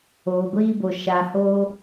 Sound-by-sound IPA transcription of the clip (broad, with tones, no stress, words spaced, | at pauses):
oː˨ɡʷiː˧bo˨ ʃa˨ho˧